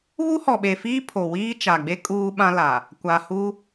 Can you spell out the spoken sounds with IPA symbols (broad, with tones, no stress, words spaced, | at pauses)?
βu˦hɔ˨ɓe˨fiː˦ pʰo˨wiː˦ t͡ʃa˨ɡ͡be˦ kʼuː˦ɓã˦la˨ | kʷa˨hu˦